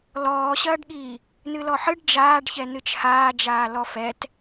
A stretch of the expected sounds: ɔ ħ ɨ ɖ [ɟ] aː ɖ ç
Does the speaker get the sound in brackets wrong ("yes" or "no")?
yes